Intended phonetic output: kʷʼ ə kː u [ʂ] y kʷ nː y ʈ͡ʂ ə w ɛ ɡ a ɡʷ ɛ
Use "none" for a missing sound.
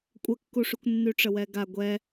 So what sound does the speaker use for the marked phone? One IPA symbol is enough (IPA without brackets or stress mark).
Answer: ʂ